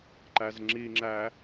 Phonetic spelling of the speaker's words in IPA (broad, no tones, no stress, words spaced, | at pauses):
ǃæzŋ͡ǁiŋ͡ǁæ